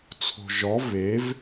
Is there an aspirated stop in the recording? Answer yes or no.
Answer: yes